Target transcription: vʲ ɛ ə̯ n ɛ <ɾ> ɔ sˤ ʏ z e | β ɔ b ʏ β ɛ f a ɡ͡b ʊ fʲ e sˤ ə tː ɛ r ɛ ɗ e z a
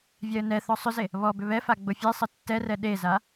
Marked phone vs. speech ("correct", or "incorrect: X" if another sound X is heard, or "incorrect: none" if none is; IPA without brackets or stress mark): incorrect: θ